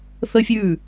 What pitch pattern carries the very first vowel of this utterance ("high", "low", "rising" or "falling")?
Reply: high